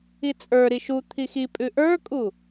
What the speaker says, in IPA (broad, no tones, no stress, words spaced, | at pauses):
it͡sʼə˞ɾi ʃu t̪ʰixipʼʉ ʔə˞kʼu